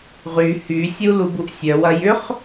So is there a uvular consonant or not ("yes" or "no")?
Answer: yes